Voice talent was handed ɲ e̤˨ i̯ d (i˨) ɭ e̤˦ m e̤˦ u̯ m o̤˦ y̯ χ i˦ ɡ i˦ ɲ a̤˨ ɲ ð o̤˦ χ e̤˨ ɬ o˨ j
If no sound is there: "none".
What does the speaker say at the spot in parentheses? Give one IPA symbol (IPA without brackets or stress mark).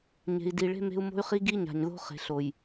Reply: i˨